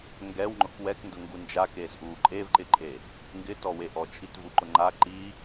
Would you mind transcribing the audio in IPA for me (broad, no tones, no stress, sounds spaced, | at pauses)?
ŋ ɡ ɛ w ŋ͡ǃ ʊ k w ɛ k n d ʊ ŋ ɡ u n d͡ʒ a k eː s ʔ uː ǃʼ e v ǃ ɪ ǃʼ e | ŋ ɡ ɪ t ɔ w e ʔ ɔ t͡ʃʰ i t v u ǃ ʊ ŋ͡ǃ a ǃ i